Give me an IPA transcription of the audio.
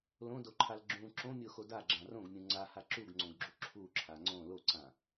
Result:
l õ d o ǃʰ a l ɡ͡ǁ ũ ǁ õ mʲ o x o d a ɡ͡ǁ ã r õ ɡ mʲ ũ ŋ͡ǀ a h a ǁ u ɡ ŋ͡ǀ õ ɡ ɡ͡ǁ u ǁʰ u ǁʰ a ŋ͡ǀ õ l o ǀ ã

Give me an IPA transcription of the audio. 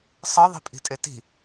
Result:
sˤ ɤ ðˤ i̤ pʼ i̤ tʼ e t i̤

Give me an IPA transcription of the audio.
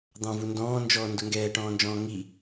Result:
d̪ ɑ̃ v u n d ɔ̃ː n d͡ʒ ɔː n d ʊ ŋ ɡ ɛː ʈ ɔ̃ː n d͡ʒ ɔ̃ː ŋ i

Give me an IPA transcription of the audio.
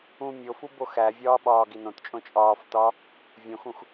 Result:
ũ mʲ o f u b o x æ vʲ ɒː ɓ ɒː ɡ i n õ t t͡ʃʼ õ t͡ʃʼ ɒː f t ɒ | vʲ õ x ũ x

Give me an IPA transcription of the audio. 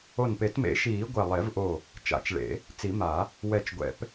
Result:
o˧˩ n p e˨˩˦ t m ḛ˨˩˦ ʃ iː˨˩˦ ɡʷ ɛ˧˩ lˠ e˨˩˦ v ʔ o˧˩ | t͡ʃ a̰˨˩˦ t͡ʃ ɭ ḛ˨˩˦ | t͡s i˨˩˦ m a˨˩˦ | w ɛ˧˩ t͡ʃ ɡʷ ɛ̰˨˩˦ p

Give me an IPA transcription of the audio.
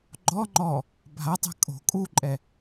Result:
ɡ͡ǃ ɔ ŋ͡ǃ ɔ | bʱ a tˤ ɛ̤ kʼ o̤ kʼ u ǃʼ ɛ

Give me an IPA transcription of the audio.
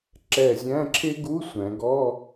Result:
ǁ ɛ˧˩ zʲ æ̃˧˥˧ ǁʰ ɪ˥ ɡ u˧˥˧ sʷ æ̃˩˧ ɡ ɔ˧˥˧

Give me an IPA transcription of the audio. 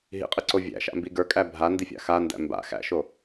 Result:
ɦ ḭ qʼ ɨ ǀ o vʲ æ̰ ʃ a̰ m b i ɡ ə˞ kʼ æ bʱ a n d i fʲ a̰ x a n d æ̰ m b a̰ x æ̰ ʃ o

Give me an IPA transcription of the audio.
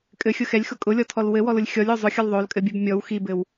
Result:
kʼ ɘ xʲ ʊ x ɛ lʲ x ʊ kʼ ʊ lʲ ɔ tʰ ɔ l w ɘ w ɔ l ʊ lʲ xʲ ɔ lʲ o zˤ ʊ xʲ ʊ l ðˤ o l kʼ ɘ bʲ ɘ b mʲ ɔ w x i b ɘ w

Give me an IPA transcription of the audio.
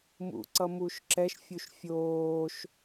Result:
m ṵ ǀ ʌ m u ʃ ǁ ɛ ʃ fʲ u ʃ fʲ oː ʃ

